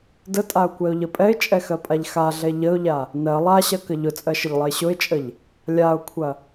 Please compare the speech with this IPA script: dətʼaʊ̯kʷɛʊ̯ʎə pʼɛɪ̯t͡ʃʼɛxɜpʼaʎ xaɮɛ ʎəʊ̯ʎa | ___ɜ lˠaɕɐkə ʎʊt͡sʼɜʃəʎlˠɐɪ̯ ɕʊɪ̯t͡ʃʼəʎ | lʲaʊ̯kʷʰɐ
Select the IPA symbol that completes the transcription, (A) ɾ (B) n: B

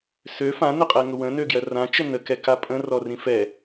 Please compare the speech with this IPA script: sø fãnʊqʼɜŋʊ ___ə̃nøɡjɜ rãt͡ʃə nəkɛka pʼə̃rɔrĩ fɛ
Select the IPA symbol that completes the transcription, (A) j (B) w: B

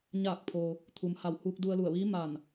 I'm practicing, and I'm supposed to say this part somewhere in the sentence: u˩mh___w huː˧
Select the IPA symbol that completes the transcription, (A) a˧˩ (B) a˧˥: A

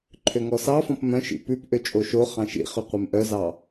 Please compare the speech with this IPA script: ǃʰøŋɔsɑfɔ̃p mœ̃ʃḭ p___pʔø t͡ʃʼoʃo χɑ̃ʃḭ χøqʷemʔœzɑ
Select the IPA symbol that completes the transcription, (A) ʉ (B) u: A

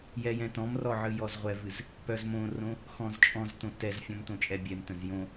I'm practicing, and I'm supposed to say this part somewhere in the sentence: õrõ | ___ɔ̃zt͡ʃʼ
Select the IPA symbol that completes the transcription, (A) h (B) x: B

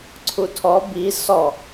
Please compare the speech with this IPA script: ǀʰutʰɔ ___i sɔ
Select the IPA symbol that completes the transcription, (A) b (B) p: A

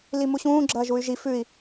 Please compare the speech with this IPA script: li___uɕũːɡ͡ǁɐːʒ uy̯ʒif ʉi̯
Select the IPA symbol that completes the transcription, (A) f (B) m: B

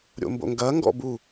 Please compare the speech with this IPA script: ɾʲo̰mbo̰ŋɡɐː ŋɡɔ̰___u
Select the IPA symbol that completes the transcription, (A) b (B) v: A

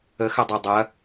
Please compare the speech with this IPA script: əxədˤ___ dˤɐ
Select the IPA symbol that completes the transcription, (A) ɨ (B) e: B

